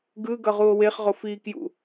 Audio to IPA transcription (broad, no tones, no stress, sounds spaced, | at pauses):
ɡ ɯ ɡ ʌ ʁ u o̯ w e χ ʁ o f iː k j ṵ